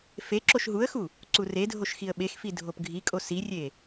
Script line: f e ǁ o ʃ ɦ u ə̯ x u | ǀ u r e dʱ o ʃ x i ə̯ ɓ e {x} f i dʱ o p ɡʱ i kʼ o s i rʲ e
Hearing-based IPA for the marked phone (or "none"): x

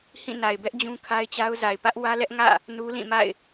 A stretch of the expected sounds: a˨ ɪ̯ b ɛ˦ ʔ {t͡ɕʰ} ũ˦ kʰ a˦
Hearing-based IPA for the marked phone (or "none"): d͡ʑ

